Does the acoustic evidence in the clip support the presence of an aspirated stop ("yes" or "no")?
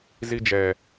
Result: no